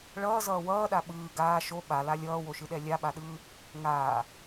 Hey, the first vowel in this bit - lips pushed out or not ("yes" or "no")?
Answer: no